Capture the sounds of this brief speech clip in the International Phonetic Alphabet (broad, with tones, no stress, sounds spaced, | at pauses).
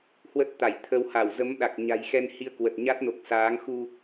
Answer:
h w ə˦˥ t̚ t̪ a˧˩ j t̪ʰ ə˧ w h a˧˩ w z ə˨˦ m ɗ a˨˩ k̚ ɲ a̤˨˩ j x ɛ˧ n h i˧ ə̯ k w ə˨˩ t̚ ɲ a˦˥ t̚ n o˨˩ k̚ s aː˨˦ ŋ x u˧